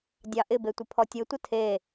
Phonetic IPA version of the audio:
dʲɑʔɪbe tʷɪpʰɔtʲɘtʷə tʰe

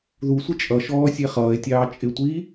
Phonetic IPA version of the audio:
ðu sʷɪt͡ʃʼʌʃɔː sʲɛχʌːe̯tʲɑː t͡ʃʼɪtʷiː

